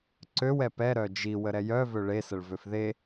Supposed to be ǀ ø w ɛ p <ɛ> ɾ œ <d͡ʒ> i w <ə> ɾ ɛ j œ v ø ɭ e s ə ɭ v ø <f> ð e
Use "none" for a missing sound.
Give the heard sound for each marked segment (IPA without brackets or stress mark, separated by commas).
ɛ, d͡ʒ, ə, f